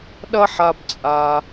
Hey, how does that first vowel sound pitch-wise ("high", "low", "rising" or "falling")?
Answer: high